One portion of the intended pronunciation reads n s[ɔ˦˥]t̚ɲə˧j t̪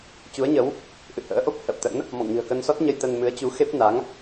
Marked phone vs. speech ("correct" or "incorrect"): correct